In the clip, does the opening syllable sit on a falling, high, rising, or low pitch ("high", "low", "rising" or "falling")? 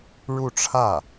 falling